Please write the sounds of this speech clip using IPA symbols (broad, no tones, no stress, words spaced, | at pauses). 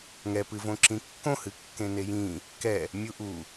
ŋɛpɨvõ ǁĩkːõhɨ kːẽnejĩ | kɛ | mʲuʔu